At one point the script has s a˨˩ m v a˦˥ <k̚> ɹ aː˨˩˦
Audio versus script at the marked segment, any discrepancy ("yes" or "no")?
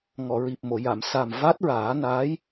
yes